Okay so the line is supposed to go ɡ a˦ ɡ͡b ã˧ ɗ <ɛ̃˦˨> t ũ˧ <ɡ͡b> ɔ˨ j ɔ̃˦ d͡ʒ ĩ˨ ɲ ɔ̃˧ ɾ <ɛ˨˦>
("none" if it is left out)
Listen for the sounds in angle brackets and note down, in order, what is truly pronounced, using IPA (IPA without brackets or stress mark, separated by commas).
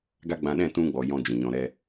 ɛ̃˦˨, ɡ͡b, ɛ˦